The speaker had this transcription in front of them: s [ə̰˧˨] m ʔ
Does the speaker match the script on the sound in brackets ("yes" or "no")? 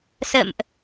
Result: yes